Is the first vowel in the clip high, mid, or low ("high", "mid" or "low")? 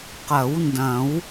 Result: low